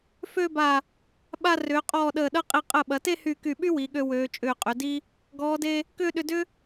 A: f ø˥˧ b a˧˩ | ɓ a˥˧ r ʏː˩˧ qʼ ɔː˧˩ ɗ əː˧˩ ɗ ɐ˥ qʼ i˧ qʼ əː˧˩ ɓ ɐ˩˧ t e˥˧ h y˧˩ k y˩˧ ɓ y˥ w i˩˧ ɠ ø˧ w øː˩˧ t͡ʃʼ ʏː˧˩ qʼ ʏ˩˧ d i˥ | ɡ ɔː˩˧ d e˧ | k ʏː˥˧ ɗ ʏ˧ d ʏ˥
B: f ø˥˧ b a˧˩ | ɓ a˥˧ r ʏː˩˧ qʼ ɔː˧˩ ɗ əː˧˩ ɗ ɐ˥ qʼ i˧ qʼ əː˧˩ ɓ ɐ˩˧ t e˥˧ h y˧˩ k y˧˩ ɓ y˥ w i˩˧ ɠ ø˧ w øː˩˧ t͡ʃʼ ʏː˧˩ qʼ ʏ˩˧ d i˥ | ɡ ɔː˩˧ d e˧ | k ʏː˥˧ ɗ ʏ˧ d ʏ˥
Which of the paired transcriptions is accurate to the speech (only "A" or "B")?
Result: B